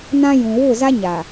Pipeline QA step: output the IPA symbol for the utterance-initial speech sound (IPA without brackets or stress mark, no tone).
n